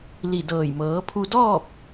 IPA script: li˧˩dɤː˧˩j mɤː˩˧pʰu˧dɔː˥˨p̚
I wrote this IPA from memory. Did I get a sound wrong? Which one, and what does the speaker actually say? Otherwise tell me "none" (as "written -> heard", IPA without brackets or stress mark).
none